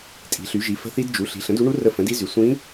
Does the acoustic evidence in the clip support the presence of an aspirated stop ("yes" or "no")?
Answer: no